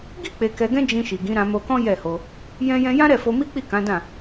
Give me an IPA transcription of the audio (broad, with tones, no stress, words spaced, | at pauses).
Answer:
ɡi˦ k͡pe˧kɛ˧ɡɛ̃˦ d͡ʒĩ˧ʃi˨ɡĩ˨˦ ɾã˧mo˧kɔ̃˦ jɛ˦˨ho˧ | jɛ̃˦jɛ̃˦ jã˦ɾɛ˦˨fo˧ mi˦k͡pi˦˨kã˨˦dã˦˨